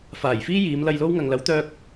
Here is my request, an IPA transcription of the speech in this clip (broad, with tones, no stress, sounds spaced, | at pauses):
f aː˨˩ j f iː˥ j iː˨˧ m l ɐ˧ j l o˥ w ŋ ɐ˨ ŋ l ɐ˨˥ w t̪ œː˥ k̚